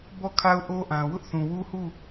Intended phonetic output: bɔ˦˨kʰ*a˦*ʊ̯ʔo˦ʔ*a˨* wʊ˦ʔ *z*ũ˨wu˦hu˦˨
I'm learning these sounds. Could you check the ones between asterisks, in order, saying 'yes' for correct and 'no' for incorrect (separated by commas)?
yes, no, no